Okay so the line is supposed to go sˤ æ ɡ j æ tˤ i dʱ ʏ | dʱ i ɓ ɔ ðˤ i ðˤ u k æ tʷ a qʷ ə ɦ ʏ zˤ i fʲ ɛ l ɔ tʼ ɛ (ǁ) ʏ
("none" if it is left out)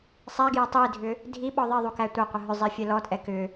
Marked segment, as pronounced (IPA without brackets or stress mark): k